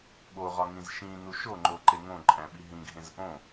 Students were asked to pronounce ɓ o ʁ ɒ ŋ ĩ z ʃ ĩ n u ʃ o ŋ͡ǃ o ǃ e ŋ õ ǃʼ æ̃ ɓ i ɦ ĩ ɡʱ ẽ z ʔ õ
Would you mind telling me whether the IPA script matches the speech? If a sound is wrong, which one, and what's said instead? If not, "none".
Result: none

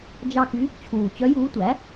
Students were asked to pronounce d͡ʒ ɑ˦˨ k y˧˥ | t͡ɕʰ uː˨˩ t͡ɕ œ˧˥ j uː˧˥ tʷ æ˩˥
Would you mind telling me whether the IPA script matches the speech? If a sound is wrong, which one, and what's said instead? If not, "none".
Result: none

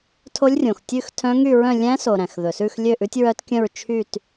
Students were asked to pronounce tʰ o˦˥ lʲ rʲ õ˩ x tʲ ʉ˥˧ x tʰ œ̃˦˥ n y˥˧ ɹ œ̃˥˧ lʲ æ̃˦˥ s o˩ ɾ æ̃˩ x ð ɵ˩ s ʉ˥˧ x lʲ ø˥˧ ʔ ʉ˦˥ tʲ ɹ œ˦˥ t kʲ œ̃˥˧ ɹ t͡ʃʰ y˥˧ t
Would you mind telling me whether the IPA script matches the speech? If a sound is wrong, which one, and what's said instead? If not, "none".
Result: n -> ŋ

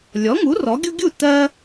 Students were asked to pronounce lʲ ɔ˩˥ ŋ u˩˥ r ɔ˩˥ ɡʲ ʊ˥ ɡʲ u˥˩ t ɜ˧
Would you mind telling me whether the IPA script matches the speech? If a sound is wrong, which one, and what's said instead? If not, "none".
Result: none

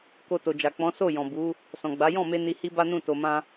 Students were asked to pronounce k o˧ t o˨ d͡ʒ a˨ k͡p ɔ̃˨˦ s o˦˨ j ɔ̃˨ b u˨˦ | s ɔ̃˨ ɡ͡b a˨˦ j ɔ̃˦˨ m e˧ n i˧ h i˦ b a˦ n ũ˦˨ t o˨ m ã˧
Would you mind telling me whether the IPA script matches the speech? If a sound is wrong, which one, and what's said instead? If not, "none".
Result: none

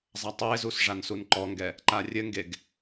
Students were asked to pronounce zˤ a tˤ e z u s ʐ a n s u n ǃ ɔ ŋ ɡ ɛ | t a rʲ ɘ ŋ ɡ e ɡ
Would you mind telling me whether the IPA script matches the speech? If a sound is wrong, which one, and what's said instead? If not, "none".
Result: t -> ǃ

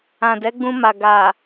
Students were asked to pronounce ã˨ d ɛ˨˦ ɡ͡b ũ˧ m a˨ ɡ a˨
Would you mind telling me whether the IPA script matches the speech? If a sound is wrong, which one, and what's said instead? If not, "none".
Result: none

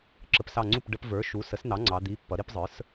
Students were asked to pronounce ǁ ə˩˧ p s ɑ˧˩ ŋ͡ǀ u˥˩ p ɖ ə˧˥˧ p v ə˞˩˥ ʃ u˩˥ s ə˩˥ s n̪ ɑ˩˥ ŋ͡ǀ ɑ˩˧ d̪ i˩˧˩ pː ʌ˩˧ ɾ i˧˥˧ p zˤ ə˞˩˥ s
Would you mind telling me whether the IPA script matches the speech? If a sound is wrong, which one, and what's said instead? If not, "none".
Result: none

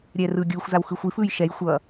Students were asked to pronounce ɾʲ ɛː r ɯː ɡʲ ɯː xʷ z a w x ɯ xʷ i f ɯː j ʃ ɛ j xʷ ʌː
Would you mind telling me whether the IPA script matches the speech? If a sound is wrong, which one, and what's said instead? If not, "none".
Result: none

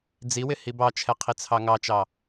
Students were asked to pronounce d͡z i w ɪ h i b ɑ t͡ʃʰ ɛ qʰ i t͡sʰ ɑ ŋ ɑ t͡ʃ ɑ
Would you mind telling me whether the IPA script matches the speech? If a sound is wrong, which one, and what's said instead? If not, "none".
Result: none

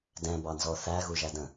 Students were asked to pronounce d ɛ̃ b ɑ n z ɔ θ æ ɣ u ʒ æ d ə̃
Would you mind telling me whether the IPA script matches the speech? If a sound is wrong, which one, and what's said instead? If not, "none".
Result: none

